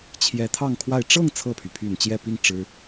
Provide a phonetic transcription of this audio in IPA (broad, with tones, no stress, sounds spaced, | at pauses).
t͡ɕʰ j ɛ˧˥ t̪ʰ ɑ˥˧ ŋ kʰ w a˥˧ ɪ̯ ʈ͡ʂ ɤ˥˧ ŋ t͡sʰ ɤ˥˩ pʰ y˩ pʰ y˨˩ n t͡ɕ j ɛ˥˧ p i˥˩ ŋ ʈ͡ʂ ɻ̩˥